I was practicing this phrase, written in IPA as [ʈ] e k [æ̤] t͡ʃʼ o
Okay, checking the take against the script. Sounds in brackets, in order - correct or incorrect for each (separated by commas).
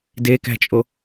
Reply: incorrect, correct